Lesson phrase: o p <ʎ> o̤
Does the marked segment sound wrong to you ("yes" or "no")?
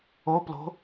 yes